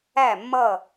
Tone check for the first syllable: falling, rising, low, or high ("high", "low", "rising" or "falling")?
falling